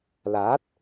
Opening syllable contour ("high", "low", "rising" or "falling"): rising